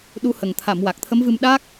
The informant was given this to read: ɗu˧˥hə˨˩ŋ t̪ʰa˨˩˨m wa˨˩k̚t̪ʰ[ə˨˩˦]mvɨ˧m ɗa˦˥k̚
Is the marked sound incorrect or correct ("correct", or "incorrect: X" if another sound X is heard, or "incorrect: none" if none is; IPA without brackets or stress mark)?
incorrect: ə˧˥